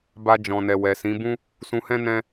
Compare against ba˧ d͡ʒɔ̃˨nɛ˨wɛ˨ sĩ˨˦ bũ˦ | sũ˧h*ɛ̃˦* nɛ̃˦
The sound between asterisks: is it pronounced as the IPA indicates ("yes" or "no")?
yes